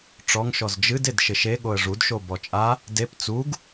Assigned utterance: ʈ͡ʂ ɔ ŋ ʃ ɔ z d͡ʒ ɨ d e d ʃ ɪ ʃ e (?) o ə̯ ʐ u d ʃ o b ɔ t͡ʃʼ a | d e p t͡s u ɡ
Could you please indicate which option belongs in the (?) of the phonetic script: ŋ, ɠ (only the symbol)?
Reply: ɠ